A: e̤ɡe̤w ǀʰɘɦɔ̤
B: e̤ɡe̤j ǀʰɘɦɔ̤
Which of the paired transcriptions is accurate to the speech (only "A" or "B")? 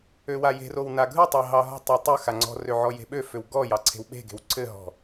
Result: A